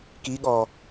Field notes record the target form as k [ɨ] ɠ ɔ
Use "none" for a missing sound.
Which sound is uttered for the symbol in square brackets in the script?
i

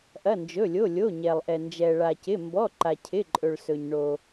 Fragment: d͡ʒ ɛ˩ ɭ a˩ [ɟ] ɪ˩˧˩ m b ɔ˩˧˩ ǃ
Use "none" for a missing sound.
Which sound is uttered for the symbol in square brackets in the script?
c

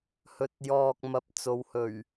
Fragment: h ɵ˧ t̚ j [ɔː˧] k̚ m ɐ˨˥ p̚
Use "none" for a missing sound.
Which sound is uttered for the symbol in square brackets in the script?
ɔː˧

